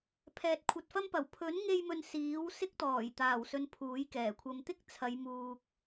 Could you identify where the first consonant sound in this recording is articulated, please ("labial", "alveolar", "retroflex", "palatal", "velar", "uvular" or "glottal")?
labial